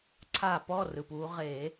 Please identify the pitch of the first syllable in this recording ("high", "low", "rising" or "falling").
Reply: falling